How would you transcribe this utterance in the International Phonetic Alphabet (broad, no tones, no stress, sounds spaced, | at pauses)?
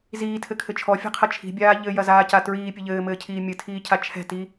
z iː tʰ ɘ kʰ ɘ t͡ʃʰ ɔ fʲ ɛ̤ qʰ ɐ t͡ʃʰ i̤ bʲ aː ʎ ɘ j ɐ z aː c a t ɹ iː pʲ ɘ ʎ ɘː m ɘː cʰ iː mʲ ɨ tʰ iː cʰ a t͡ʃʰ ɛ̤ t i